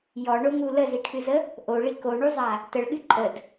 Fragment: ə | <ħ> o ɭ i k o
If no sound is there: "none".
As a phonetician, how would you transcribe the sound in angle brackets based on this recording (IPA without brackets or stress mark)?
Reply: ʔ